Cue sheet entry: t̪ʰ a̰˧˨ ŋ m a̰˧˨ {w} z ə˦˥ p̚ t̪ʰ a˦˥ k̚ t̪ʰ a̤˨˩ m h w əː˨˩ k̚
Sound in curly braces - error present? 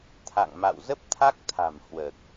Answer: no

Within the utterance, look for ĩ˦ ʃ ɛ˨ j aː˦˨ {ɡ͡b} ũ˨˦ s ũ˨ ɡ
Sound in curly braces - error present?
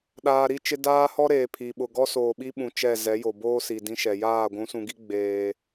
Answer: yes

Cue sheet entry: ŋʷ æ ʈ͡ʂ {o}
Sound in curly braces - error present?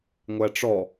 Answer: yes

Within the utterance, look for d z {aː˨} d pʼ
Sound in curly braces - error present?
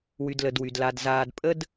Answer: no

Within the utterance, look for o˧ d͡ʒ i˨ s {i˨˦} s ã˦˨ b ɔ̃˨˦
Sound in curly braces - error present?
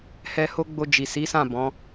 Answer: no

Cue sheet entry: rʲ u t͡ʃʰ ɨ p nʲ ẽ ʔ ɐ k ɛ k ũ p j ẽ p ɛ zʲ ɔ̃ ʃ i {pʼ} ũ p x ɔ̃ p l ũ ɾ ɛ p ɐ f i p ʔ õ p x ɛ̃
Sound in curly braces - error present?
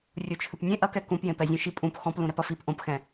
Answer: no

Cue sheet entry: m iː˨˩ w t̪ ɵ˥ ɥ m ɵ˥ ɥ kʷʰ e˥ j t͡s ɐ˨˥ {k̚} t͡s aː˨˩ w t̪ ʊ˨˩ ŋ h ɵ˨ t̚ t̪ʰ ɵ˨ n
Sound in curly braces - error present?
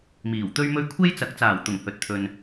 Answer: no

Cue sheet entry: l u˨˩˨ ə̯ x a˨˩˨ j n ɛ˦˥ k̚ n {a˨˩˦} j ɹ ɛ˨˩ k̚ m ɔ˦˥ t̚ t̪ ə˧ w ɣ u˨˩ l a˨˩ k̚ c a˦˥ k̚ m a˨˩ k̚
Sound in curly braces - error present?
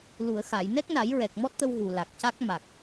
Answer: no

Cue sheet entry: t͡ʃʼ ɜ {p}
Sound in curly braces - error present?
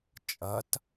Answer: yes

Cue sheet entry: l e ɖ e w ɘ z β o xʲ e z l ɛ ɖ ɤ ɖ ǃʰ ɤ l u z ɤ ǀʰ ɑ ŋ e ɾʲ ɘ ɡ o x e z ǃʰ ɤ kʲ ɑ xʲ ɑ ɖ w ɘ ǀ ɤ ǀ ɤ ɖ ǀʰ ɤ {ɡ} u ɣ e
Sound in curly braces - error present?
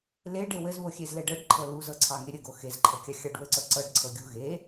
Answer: yes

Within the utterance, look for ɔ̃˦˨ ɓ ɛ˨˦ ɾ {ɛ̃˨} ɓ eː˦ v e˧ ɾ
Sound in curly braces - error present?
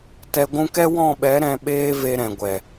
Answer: yes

